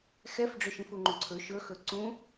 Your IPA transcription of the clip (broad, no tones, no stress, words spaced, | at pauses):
xɛfɖ͡ʐɵʃĩf uŋ͡ǃũǀʰɵ ʃɵxɵ ǀũ